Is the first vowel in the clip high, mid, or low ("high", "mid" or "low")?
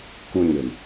high